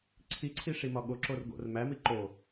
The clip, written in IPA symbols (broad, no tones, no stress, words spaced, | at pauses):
ǀʰiǀʰi ʂimɒɠoǁor ɡo̰r mæmi ǃo